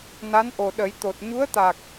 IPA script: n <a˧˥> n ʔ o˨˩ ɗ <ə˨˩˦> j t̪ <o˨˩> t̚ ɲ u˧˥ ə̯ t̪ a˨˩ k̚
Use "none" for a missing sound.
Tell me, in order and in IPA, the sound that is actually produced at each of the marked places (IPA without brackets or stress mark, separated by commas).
a˧˥, ə˨˩˦, o˨˩